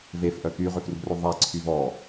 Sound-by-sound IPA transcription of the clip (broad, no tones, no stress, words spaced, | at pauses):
vefʔœ kyʁøfrṳrø ðˤaǀʰy vɔ